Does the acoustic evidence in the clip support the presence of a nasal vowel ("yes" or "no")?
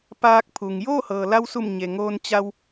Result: no